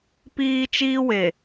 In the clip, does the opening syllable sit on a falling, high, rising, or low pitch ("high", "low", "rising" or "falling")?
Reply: high